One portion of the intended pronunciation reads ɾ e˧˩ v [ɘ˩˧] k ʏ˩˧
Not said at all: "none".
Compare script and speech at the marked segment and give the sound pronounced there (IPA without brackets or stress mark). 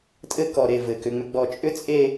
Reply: ɘ˩˧